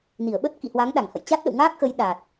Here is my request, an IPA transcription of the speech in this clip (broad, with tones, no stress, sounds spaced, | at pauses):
n i˧˩ ə̯ ɓ ə˦˥ t̚ k ḭ˧˨ h w a˨˦ ŋ ɗ a˧˩ ŋ h ə̰˧˨ j t͡ɕ a˦˥ t̚ ɗ ə̰˧˨ w ŋ aː˦˥ k̚ x ə˨˦ j ɗ a˨˩ t̚